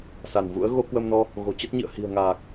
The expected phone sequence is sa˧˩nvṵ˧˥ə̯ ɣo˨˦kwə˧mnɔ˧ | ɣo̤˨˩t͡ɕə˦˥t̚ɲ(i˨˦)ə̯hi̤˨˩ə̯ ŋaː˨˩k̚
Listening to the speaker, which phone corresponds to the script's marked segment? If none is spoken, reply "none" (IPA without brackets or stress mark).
ḭ˧˨